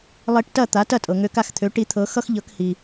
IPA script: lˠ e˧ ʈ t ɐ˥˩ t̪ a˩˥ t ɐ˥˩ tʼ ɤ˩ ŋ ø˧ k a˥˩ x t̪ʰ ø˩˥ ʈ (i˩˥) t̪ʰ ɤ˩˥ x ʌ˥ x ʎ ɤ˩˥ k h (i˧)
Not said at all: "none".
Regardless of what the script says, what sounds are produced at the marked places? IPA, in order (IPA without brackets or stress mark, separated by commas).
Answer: i˩˥, i˩